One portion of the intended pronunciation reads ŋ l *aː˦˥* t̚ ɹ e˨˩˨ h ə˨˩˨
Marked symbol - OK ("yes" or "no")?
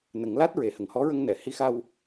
no